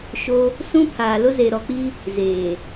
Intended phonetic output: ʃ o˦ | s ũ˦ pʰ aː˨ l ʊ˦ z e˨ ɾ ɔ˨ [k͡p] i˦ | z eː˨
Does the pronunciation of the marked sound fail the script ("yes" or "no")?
no